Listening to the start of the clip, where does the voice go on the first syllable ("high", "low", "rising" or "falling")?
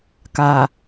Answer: low